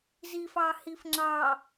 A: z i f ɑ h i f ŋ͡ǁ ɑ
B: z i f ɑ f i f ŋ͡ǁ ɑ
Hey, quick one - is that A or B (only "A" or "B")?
A